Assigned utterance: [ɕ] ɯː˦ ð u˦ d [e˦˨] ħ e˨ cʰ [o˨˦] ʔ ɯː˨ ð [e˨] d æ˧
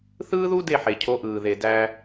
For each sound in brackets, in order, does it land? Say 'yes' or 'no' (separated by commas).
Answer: no, yes, yes, yes